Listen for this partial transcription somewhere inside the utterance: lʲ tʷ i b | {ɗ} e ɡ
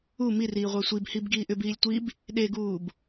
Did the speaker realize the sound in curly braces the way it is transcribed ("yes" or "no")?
yes